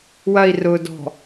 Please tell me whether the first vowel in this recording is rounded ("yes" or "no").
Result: no